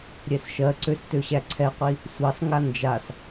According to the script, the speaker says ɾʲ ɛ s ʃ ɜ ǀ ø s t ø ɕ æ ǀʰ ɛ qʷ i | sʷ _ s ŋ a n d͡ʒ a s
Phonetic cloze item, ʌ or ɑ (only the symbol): ɑ